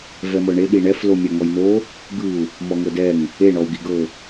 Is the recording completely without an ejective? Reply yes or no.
yes